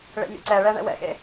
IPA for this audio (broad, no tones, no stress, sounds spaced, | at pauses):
ɭ ḛ mʲ ḛ ǀ ɛ ɭ ɛ ɳ ɛ̰ w ɛ̰ x ḛ